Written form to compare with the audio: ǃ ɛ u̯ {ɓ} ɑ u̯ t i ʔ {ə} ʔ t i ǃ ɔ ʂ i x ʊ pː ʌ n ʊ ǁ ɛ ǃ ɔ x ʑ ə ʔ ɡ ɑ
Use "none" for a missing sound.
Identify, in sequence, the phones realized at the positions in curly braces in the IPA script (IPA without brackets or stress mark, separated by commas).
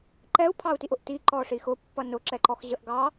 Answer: pʰ, ʊ